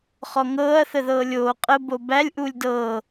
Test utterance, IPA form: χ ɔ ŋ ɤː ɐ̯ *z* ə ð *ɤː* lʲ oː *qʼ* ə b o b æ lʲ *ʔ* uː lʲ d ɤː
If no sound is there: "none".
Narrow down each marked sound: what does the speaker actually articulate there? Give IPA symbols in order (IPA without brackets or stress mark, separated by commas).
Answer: θ, ɤː, qʼ, ʔ